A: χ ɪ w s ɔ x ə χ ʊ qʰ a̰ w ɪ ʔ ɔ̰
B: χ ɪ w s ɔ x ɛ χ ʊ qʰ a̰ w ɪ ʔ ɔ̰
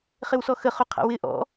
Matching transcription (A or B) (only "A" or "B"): A